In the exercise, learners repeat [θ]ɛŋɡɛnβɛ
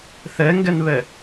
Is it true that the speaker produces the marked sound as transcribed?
yes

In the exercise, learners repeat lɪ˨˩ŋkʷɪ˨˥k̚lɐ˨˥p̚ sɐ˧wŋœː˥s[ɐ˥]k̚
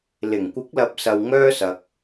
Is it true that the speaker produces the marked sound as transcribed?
no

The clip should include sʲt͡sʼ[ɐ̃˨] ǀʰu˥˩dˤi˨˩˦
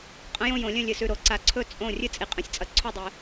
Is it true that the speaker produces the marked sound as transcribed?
no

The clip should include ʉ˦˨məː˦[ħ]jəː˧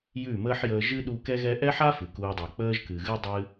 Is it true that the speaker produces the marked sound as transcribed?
yes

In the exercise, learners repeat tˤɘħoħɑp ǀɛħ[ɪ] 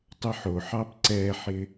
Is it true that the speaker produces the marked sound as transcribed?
yes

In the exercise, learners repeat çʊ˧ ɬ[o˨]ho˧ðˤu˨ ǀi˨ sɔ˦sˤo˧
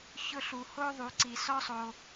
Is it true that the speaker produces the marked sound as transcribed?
no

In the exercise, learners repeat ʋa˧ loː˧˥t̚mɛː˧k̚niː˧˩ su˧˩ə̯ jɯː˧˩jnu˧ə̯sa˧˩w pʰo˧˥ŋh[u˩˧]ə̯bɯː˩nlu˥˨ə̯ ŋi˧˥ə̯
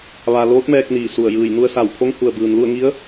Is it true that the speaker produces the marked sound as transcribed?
no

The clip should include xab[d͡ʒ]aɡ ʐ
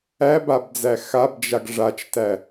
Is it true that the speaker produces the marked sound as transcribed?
yes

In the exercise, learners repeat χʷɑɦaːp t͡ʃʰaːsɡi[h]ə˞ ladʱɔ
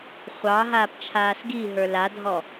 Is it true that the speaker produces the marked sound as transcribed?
no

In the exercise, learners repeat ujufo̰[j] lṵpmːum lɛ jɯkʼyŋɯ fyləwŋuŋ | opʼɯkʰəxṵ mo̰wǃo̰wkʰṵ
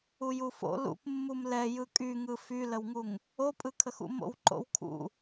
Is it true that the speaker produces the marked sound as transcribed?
no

